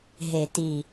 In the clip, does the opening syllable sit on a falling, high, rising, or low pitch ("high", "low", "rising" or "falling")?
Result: low